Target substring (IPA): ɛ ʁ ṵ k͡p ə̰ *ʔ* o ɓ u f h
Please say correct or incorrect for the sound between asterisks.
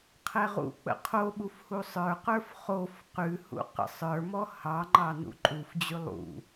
incorrect